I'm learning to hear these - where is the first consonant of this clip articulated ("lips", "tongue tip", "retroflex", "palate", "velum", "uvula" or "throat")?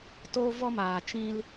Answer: tongue tip